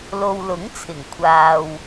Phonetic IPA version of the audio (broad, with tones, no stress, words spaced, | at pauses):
lo˨wlʊ˨˥ŋt͡sʰɪ˨˩ŋ kʷʰaː˨w